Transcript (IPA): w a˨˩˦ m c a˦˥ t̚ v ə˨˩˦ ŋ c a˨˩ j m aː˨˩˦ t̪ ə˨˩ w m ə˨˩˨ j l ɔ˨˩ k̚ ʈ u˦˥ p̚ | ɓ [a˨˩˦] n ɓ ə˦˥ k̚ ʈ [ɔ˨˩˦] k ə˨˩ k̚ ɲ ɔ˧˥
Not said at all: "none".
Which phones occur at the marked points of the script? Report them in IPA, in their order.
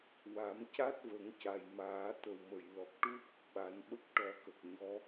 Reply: a˨˩˦, ɔ˨˩˦

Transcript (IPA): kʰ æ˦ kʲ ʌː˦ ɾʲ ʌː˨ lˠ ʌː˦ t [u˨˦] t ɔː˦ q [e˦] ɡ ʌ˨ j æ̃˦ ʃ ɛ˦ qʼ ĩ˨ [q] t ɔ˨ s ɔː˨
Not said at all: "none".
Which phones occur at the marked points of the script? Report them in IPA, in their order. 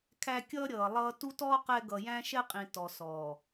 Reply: u˦, ɛ˦, none

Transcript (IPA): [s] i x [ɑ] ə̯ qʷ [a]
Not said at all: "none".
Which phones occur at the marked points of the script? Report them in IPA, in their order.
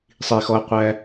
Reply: sˤ, ɔ, æ

